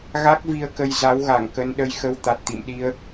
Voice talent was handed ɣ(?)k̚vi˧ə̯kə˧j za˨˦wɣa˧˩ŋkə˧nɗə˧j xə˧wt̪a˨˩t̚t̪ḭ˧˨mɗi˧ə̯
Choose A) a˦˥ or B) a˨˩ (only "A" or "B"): A